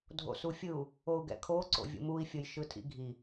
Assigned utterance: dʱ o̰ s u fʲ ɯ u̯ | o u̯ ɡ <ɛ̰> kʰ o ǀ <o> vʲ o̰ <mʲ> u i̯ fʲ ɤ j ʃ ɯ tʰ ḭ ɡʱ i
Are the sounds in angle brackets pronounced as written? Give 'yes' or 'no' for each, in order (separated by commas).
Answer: yes, no, no